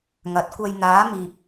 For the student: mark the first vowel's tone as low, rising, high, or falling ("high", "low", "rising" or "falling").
rising